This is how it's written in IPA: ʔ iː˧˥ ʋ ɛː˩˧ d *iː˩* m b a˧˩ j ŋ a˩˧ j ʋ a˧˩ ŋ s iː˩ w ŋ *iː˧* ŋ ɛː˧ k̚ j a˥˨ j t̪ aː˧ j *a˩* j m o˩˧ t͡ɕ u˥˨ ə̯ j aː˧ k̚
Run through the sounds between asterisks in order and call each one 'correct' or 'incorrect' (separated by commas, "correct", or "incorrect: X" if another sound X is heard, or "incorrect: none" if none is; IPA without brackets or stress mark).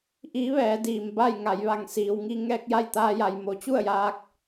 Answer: correct, incorrect: i˧, correct